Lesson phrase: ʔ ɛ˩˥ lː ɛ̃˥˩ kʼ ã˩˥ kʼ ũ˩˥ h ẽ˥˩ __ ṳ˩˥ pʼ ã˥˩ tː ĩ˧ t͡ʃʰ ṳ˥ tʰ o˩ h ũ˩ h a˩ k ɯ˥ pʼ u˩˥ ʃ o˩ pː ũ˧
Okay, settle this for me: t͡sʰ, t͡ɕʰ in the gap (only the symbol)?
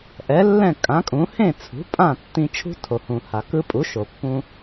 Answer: t͡sʰ